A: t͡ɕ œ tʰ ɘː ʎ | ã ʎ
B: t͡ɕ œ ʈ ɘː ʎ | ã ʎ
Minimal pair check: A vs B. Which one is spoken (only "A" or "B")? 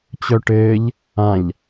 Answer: B